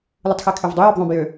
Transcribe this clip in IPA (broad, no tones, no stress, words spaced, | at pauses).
lɯtˤxekʰøvdˤu jøbðˤõb jø